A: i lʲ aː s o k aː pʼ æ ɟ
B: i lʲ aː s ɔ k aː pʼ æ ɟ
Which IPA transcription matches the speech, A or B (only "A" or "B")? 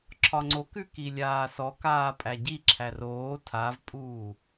B